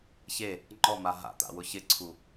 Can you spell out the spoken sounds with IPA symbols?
ç e | ŋ͡ǃ ɔ m a ɦ a̰ t̪ a̰ w ʊ ç ɪ ǀʰ u

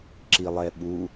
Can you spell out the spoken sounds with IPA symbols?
ǁ i lˠ ɛ ɓ u

